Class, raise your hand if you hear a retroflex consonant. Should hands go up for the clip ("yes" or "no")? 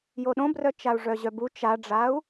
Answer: yes